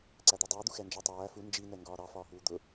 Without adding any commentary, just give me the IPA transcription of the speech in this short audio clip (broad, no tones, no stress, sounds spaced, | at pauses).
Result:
ǀ æ d̪ ɔ dˤ ʌː d̪ u x ɛ n d͡ʒ ʌ tˤ æː f u n d͡ʒ i n ɛ ŋ ɡ ɒː ɾ ɑ f ɒː ɦ uː d̪ ʊ